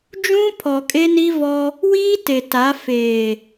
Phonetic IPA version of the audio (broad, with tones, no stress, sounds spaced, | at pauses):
d͡ʒ ũ˦ pʰ ɔ˨ kʼ e˦ n i˦ v ɔ˦ | w iː˦ t e˨ t a˨˦ f eː˨